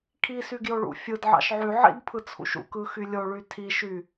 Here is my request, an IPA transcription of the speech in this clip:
kʰ i s y ɡ j o ɭ ṵ fʲ ɯ d ʕ ɑ̰ ʃ ʕ y ʕ ḭ d pʰ ɯ t͡sʰ ṵ ʃ ṵ k ɯ x y lʲ o ɭ y tʰ i ʃ y

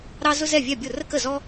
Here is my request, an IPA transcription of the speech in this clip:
ɾ ɑ˥ z ʊ˥ z ɛ˥˨ vʲ ɛ˥˨ bʲ ʊ˥˨ r ə˥ k ə˥˨ z ɔ˥

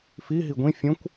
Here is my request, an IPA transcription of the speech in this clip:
f i ɦ i ɡʷ ĩ fʲ õ kʷ

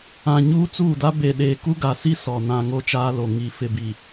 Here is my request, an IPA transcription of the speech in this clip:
ã˨ ɲ uː˦ t͡s uː˦˨ d a˦ b e˨ ɗ eː˨ k u˦ ɡ a˨ s i˦ s ɔ˨ n ã˨ ŋ o˦ t͡ʃ aː˦ l o˨ ŋ i˨ f ɪ˨ b i˨

